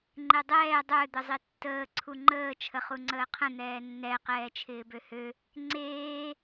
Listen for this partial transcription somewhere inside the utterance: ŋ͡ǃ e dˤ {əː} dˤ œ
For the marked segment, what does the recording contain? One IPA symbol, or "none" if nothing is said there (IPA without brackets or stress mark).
ɛː